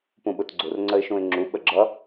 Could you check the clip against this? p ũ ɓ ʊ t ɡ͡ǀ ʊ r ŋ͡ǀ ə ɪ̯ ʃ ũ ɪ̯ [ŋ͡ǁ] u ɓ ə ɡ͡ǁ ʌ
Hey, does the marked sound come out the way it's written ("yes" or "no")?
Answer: yes